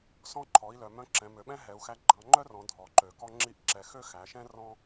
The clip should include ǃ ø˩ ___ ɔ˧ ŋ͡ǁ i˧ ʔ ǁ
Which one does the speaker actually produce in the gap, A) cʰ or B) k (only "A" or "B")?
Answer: B